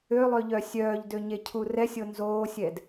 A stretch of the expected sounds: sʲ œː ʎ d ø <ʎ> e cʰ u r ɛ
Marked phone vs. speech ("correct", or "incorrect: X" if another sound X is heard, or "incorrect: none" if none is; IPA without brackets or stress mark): incorrect: ɲ